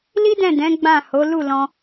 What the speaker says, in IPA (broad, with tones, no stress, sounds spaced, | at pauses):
l i˦ d ɛ̃˦˨ d ɛ̃˨˦ ɡ͡b ã˦˨ h o˨˦ l u˦˨ l ɔ̃˧